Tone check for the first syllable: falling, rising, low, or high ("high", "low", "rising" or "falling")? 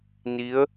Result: rising